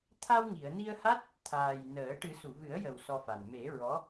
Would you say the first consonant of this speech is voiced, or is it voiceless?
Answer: voiceless